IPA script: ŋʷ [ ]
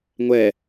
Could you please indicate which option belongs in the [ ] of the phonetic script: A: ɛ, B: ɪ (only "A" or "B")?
A